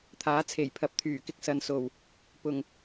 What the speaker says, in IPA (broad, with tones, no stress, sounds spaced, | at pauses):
t̪ʰ aː˨˥ t͡sʰ e˨˩ j pʰ ɐ˨˥ p̚ t̪ʰ yː˨˩ k ɪ˧ k̚ s ɐ˨ n s o˨˩ w | p ʊ˨˩ ŋ